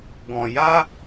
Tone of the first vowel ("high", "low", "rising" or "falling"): low